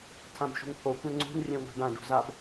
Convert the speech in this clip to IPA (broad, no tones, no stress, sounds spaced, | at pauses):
tʰ ã b ʃ ṳ ŋ pʰ o kʷ ɛ̃ ŋ͡ǀ ṳ n rʲ ɛ̃ ŋʷ a̤ ɖ ã ɖ ṳ z a b